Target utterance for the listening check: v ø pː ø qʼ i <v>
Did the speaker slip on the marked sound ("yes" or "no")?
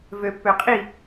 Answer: yes